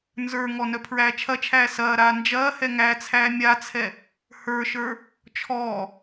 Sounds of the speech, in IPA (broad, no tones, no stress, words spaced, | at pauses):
nzə˞ŋɔ nœpʰɹæːt͡ʃʰɐt͡ʃʰæː sɐːɾaː nd͡ʒɐːhɛ ŋæt͡sʰæː mʲat͡sʰɛ | hə˞ʃə˞ | t͡ʃʰɔː